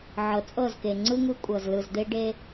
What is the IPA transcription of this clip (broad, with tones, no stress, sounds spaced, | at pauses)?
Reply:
ʕ ɤ˨ t͡sʼ ɤ˦˨ z k e˨ ŋ͡ǀ ɯ˦ ŋ ɯ˦ kʷʼ ɤ˨ z l ɯ˨ z d̪ e˦ ɖ e˦